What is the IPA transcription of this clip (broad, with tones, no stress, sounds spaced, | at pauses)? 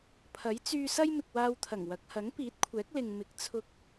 pʰ ɐ˨˥ j t͡s yː˧ s ɐ˥ j m ɪ˨ k̚ w aː˧ w t̪ʰ ɐ˨˩ ŋ w ɐ˨˥ k̚ h ɐ˨˥ ŋ p iː˨˥ t̚ kʷʰ ɛː˨˥ k̚ l ɪ˨ ŋ m ɪ˨˥ k̚ t͡sʰ ʊ˧ k̚